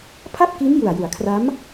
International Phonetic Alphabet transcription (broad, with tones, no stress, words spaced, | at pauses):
pʰa˥˩p̚ki˦˥nju˨˩a̯ ju˩˦a̯kʰra˦˥m